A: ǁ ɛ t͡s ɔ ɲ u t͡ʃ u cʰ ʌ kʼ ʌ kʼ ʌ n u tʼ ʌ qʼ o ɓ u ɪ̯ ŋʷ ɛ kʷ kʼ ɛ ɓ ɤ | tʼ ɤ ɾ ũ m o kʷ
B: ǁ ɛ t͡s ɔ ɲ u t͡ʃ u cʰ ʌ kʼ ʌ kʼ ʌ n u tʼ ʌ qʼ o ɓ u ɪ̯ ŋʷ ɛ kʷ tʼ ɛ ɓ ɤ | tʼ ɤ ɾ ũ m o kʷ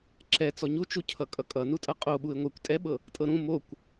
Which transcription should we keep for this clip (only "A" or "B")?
B